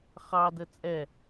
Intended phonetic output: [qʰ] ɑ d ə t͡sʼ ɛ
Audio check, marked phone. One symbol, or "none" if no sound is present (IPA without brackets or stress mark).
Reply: χ